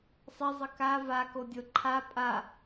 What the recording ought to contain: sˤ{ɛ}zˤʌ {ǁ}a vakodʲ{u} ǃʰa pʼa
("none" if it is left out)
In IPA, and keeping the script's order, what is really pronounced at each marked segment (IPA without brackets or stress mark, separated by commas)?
ɛ, k, o